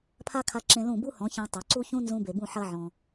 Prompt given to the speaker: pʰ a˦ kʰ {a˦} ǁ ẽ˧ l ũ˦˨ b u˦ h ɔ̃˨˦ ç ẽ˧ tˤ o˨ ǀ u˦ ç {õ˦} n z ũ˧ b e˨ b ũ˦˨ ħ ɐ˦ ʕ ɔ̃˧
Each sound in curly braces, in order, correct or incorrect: incorrect: a˧, incorrect: ũ˦

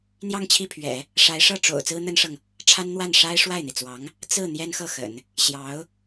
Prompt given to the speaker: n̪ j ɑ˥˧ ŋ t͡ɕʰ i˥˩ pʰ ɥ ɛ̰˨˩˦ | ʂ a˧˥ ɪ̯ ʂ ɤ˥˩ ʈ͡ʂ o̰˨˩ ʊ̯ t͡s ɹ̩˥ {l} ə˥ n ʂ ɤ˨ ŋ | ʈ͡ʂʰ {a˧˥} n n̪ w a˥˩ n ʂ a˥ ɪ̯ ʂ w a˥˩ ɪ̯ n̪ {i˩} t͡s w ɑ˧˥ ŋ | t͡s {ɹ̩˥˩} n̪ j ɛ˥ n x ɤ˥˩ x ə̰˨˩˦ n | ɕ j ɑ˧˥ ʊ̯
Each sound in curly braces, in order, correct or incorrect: incorrect: n̪, incorrect: a˥, correct, correct

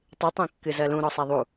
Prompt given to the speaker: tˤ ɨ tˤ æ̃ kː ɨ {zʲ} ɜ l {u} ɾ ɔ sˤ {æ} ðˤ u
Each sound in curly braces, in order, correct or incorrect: incorrect: z, incorrect: ũ, correct

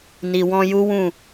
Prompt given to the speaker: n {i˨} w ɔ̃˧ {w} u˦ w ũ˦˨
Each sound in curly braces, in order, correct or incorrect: correct, incorrect: j

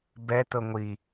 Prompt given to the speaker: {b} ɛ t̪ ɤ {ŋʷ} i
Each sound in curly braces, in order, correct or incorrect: correct, correct

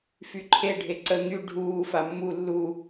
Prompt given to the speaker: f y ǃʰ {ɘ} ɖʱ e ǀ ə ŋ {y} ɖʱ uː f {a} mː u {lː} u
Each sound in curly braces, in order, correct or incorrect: incorrect: e, correct, correct, correct

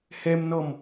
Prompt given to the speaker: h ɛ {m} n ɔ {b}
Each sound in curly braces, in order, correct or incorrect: correct, incorrect: m

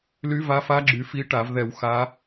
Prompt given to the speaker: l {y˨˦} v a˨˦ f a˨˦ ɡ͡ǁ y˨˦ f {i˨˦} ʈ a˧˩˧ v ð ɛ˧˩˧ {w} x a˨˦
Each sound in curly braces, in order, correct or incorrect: correct, correct, correct

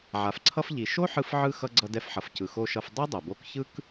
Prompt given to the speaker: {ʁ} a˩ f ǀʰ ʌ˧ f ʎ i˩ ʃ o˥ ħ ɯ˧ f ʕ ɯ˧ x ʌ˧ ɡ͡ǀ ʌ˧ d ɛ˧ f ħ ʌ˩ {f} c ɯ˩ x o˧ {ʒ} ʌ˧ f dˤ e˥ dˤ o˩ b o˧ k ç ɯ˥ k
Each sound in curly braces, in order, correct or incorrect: incorrect: ʕ, correct, incorrect: ʃ

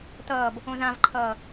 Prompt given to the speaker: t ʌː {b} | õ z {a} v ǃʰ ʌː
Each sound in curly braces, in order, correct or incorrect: correct, incorrect: ã

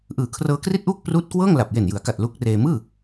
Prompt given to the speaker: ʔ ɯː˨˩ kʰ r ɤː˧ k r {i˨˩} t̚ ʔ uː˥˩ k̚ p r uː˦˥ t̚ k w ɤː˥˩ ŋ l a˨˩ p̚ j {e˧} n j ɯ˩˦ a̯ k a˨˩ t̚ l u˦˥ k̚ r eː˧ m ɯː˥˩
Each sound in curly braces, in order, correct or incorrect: incorrect: i˥˩, incorrect: e˨˩

